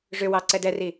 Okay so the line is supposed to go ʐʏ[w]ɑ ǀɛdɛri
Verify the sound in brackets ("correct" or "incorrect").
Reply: correct